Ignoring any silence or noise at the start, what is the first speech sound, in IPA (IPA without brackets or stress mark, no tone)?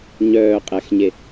ɲ